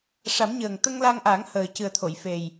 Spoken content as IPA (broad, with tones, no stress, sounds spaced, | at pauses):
ʂ a˨˩˦ m ɲ əː˨˩ ŋ t̪ ə˧ ŋ l a˧ ŋ ʔ a˨˩˦ ŋ h əː˨˩ c ɨ˨˩ ə̯ t̪ʰ o˨˩˨ j f e˨˩ j